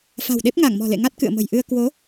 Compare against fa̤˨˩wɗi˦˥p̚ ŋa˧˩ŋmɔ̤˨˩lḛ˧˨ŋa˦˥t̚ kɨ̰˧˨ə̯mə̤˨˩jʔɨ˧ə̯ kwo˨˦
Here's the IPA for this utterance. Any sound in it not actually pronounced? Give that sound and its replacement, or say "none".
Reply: i˦˥ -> e˦˥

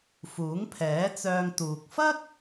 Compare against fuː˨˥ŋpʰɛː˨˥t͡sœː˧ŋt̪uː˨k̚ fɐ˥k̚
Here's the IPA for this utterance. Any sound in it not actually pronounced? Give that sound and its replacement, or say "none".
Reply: none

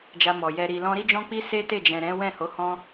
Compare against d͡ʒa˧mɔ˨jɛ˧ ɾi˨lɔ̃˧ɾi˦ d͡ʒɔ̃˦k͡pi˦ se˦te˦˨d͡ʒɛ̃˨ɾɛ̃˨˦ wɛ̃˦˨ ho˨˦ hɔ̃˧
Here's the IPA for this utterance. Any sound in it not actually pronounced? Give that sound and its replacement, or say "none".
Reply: none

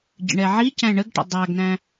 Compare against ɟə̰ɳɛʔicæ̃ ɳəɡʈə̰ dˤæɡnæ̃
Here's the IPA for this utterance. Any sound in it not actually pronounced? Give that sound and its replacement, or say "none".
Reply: ʔ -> ʕ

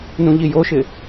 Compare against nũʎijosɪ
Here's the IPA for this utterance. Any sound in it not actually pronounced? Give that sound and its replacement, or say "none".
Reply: s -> ʃ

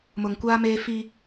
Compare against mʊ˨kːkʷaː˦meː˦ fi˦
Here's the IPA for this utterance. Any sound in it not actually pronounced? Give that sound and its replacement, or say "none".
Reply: kː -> ŋ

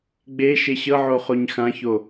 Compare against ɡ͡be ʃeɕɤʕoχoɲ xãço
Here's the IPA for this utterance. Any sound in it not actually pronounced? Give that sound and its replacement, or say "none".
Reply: none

